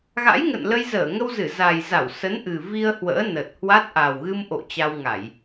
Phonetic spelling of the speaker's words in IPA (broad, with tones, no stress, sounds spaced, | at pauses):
ɣ a̰˧˥ j ŋ ə̰˧˨ n l ə˧ j z əː˧˩ ŋ ə˧ w z ɨ˧˩ z a˨˩ j z a˧˩ w s ə˨˦ n ʔ ɨ˨˩ v i˧ ə̯ h w ə̰ː˧˥ n ə˨˩ t̚ h w a˦˥ t̚ ʔ a˨˩ w ɣ ɨ˧ m ʔ o̰˧˨ t͡ɕ a˧ w ŋ a˧˩˨ j